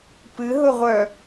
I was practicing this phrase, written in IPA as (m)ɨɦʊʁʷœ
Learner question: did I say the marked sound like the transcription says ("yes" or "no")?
no